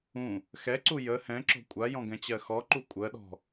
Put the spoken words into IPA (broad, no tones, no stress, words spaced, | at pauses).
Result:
ũ | xɛǀu jə hɛ̃ǁɔ̤ kʷʼajɔ̃ ɡɛ̃t͡ɕɜxɔǃu kʷʼɜɗɔ̤